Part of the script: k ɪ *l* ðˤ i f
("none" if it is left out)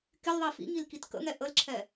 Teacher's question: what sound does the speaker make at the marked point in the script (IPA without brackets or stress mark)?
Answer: l